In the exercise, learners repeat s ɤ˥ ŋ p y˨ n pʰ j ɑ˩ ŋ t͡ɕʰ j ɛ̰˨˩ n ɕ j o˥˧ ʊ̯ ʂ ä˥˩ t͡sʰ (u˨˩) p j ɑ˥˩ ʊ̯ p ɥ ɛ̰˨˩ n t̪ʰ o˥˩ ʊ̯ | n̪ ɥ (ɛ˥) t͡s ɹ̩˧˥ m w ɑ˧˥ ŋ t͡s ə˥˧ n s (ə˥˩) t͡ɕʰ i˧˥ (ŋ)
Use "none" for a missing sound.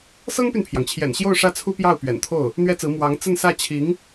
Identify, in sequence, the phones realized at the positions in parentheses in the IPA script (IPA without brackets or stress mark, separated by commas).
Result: u˥, ɛ˥, ä˥˩, ŋ